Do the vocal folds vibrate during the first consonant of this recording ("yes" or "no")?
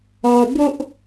yes